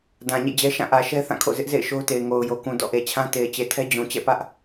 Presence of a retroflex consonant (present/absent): absent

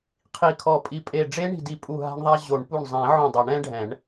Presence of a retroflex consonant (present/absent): present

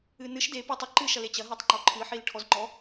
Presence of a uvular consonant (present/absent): absent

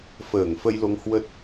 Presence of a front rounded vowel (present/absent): absent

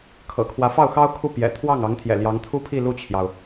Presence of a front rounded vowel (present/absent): absent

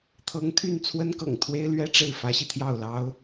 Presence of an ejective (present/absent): absent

